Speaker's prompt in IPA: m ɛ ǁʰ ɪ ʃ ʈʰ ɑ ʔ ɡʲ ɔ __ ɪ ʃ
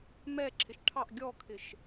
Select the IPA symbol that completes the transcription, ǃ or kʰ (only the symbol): kʰ